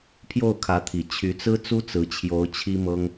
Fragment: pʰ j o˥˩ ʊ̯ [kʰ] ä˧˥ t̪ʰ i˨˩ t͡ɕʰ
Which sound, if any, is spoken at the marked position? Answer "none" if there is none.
kʰ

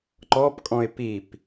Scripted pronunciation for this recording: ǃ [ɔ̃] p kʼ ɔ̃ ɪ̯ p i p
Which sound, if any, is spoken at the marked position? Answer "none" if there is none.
ɔ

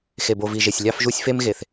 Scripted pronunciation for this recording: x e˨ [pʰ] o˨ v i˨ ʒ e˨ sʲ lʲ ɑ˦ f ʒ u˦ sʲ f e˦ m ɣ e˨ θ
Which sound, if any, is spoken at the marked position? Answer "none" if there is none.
b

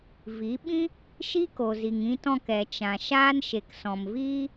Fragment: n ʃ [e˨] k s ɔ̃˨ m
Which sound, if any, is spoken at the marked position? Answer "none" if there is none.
e˨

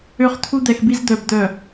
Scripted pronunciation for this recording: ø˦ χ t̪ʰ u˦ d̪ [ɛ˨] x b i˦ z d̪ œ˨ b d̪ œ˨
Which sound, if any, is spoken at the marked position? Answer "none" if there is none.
ɛ˨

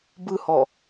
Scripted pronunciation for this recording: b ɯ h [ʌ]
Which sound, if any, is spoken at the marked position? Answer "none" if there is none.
ɔ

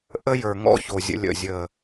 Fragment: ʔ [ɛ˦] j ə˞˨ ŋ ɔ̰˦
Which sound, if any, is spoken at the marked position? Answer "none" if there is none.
ə˦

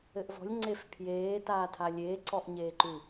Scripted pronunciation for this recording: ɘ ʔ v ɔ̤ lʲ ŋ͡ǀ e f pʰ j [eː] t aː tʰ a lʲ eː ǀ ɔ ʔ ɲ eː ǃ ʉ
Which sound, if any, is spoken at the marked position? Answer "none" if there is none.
eː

